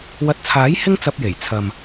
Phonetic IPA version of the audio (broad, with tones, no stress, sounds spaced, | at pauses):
w ɐ˨˥ t̚ t͡sʰ aː˨˥ j h ɪ˥ ŋ t͡s ɐ˧ p̚ j e˨˩ j t͡sʰ ɐ˨ m